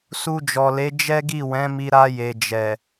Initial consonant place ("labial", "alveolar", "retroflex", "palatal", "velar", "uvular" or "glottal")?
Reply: alveolar